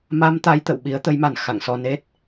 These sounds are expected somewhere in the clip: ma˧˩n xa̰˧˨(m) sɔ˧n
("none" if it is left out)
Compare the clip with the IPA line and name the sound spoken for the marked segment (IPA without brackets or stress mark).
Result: ŋ